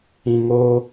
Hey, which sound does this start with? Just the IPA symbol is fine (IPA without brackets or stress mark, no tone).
ĩ